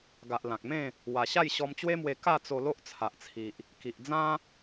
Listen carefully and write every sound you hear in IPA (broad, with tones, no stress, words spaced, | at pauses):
ɡa˨ʔ lã˨k̚mẽ˥˧ | wa˨˩ ɕa˥˧jɕɔ˧mt͡ɕwe˦mwe˧ ka˥˧t͡so˧ lo˦ʔt͡sʰa˨ʔt͡sʰi˨ʔ | ki˨ʔd͡zã˦